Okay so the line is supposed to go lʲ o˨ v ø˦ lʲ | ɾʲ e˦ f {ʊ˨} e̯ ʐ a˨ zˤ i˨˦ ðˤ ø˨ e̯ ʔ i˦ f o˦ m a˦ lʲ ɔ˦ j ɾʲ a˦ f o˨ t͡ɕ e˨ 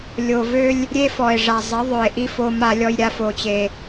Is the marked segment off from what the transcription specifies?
yes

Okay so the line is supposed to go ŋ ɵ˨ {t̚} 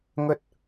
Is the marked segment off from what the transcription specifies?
no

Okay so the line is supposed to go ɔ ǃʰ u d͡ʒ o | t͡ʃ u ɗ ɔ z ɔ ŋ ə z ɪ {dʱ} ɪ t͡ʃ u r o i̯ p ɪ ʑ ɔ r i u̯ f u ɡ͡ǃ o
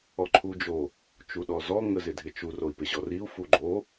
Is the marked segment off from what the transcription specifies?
no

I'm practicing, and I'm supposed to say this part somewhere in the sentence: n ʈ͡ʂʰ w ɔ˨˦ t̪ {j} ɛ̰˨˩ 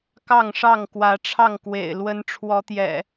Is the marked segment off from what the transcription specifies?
no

